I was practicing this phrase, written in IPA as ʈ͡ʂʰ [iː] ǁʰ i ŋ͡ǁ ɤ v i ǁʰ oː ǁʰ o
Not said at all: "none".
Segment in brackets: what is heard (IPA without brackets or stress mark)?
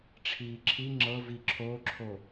iː